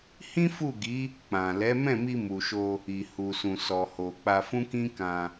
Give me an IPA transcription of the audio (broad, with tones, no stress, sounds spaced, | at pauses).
h ĩ˦ f u˦˨ ɡ i˨˦ | k͡p ã˨ l ɛ˨˦ m ɛ̃˦˨ m i˧ m u˨ ʃ o˧ | i˨ h u˨ s ũ˨ s ɔ˨ h o˨ k͡p a˧ f ũ˦ k ĩ˦ k ã˧